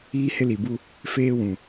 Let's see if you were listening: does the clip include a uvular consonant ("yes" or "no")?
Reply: no